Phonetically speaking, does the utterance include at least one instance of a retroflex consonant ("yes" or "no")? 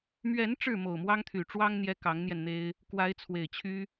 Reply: yes